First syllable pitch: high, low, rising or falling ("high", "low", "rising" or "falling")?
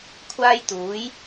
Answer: high